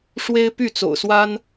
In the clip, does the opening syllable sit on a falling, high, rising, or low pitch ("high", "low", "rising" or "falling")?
high